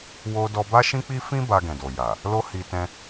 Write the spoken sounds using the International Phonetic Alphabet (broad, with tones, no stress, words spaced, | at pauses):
wo˦ dɔ˧ba˦ʃĩ˦k͡pi˦ fĩ˦ ba˧ɡɛ̃˨do˨ ja˨ | lo˦hi˧tɛ̃˦